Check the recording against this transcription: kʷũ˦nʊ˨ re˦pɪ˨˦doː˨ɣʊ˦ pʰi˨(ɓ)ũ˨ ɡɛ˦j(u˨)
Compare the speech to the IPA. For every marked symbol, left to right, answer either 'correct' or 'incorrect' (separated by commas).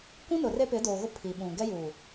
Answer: correct, correct